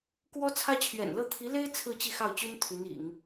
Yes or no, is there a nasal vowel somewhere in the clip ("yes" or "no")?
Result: no